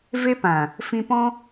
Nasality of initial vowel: oral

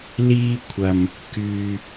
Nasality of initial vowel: oral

